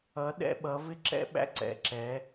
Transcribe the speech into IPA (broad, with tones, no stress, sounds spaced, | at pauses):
ʌ˨˦ ɗ ɛ̰˦ ɓ ʌ˨˦ v ɪ˦ ǁ ɛ̰˦ ɓ æ̰˦ ǀ ɛ̰˨ ǁ ɛ˨˦